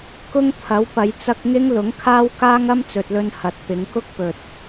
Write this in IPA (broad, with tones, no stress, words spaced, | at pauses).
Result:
kʊ˥ŋ t̪ʰɐ˨˥wpɐ˨˧j t͡sɐ˥k̚ ŋɪ˥ŋlʊ˨˥ŋkʰaː˥w kaː˥ŋɐ˥mt͡sɵ˨t̚lɵ˧n hɐ˨˥t̚pɪ˨˧ŋ kʊ˥k̚pɵ˨t̚